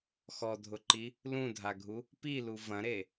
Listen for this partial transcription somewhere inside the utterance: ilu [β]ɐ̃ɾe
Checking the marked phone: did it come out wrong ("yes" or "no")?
yes